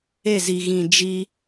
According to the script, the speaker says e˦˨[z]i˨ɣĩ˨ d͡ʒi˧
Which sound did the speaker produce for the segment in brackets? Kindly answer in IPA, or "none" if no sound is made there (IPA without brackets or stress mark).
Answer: z